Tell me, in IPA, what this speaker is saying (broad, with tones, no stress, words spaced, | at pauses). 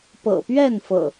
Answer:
pɤ̰˨˩pɥɛ˥˨nfɤ̰˨˩